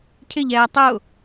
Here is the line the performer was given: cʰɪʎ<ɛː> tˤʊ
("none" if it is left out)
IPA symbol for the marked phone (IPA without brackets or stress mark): ɛː